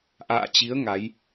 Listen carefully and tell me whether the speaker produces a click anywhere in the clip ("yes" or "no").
no